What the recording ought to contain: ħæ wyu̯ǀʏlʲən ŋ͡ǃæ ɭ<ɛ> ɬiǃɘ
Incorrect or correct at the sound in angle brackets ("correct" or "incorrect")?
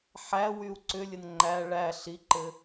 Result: incorrect